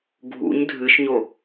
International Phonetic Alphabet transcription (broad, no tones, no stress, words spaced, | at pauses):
ɡʱṵɲ dʱɨʃɲo